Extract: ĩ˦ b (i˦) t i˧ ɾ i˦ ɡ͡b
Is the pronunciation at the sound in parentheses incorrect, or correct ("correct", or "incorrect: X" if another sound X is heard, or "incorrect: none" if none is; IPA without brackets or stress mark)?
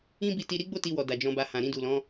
incorrect: i˧